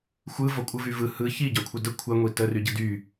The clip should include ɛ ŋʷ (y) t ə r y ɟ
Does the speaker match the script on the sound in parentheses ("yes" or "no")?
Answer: no